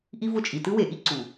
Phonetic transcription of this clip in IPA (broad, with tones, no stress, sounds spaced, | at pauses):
ʔ i˦ v ʊ˦˨ t͡ʃʼ i˨ t ɯ˦ w e˨ ʔ i˦ ǀ u˨